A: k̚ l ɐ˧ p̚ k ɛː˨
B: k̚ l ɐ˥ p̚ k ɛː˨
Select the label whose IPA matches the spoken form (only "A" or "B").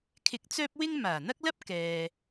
B